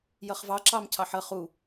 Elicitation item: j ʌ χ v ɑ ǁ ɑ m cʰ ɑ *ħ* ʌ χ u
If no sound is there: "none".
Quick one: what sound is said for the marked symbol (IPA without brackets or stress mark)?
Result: ħ